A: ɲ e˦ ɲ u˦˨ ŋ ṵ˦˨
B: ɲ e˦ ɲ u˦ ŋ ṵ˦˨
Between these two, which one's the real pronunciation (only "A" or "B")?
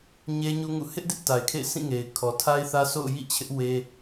B